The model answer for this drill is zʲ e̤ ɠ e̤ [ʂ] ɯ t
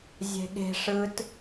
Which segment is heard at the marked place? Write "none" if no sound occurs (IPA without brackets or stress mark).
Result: ʂ